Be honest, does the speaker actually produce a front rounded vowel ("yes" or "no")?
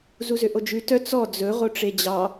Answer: yes